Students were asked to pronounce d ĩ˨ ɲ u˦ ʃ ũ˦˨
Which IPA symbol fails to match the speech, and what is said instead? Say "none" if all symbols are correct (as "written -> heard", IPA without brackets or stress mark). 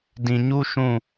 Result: none